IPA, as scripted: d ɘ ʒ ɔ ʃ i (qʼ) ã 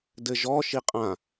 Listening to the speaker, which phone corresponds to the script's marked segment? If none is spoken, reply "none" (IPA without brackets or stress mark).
qʼ